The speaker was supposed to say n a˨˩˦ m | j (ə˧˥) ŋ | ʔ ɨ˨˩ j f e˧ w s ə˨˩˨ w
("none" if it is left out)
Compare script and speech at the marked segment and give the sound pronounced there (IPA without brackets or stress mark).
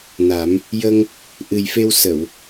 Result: ə˧